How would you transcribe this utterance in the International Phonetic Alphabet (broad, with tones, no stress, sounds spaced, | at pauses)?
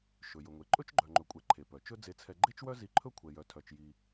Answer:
ʃ ɵ˩ j ɵ˩ ŋʷ e˩ ǃʼ ɵ˥ t͡ʃ ɡ͡ǃ œ˩ ŋ͡ǃ ɵ˩ kʷʼ ɛ˩ ǃʰ e˩ p œ˩ t͡ʃ ɵ˥ d͡z e˧ t͡sʰ ɛ˧ ɡ͡ǃ e˥ t͡ʃ w œ˥ z i˧ ǃʰ ɵ˥ kʷʰ ɛ˧ j œ˧ tʰ œ˧ t͡ʃ j i˧